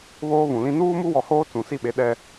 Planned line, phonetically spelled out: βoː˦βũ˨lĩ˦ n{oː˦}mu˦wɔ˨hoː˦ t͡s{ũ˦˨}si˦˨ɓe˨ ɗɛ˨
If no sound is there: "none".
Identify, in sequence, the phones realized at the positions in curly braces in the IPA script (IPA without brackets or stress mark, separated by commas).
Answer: uː˦, ũ˨